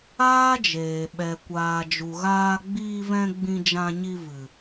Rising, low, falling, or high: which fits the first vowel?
high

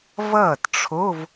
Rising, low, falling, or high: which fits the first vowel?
falling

